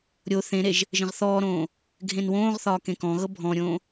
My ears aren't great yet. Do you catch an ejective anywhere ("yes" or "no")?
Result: no